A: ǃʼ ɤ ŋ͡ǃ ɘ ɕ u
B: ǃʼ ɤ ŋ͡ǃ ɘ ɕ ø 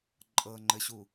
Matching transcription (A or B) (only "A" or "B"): A